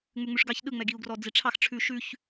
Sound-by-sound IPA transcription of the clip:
ŋ͡m ʉ ŋ͡m ʉ ʂ ɡ ɑ ç ɗ ɯ ŋ͡m ɛ ɡ i u̯ ɡ r ɔ d͡z i ʈ͡ʂʰ ɑ x ʈ͡ʂʰ ʉ ʃ ʉ ç

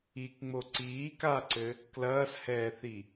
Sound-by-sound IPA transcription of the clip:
i k ŋ͡m o ǀ iː k a ǀ ɘ | k l ɐː s h ɛː θ i

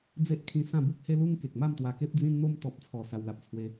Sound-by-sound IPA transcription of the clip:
d͡z e˦ ʔ kʰ ĩ˧ s ã˥˧ b u˦ k̚ h e˦ l u˦ ŋ k e˨ k̚ m a˥˧ m t̪ w a˧ k e˦ p̚ d͡z ĩ˧ n n̪ o˧ m t̪ ɔ˨ p̚ t͡sʰ ɔ˨˩ s a˧ w l a˨ p̚ t͡sʰ w e˧

